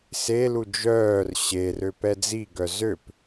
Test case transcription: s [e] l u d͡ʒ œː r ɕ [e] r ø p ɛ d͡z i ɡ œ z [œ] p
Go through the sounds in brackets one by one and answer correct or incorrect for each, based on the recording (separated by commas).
correct, correct, incorrect